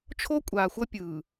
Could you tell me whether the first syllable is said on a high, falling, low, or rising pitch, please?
high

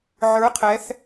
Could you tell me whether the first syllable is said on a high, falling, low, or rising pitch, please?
rising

